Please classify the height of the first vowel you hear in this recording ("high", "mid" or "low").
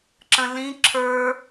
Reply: mid